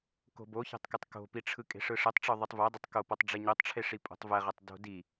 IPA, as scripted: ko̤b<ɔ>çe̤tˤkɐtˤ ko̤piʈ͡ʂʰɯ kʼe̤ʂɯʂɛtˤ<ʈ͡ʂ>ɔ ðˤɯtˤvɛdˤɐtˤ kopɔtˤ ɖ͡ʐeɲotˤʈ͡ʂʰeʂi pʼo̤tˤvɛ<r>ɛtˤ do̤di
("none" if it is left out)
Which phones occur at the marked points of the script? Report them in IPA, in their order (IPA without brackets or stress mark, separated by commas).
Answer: o, ʈ͡ʂ, ʁ